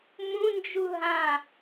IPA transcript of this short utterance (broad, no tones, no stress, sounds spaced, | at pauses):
m ũ n d͡ʒ u ɦ ã